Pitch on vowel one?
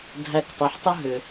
low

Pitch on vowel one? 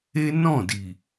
high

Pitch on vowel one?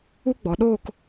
high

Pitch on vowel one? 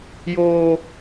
high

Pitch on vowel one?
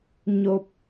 low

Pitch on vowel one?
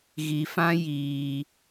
low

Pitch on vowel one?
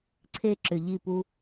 high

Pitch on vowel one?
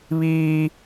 high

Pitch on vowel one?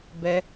high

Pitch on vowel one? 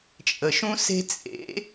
low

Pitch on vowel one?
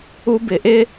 high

